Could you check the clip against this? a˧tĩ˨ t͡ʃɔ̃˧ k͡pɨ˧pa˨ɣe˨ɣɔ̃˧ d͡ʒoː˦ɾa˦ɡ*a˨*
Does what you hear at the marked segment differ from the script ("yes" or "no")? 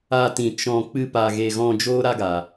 no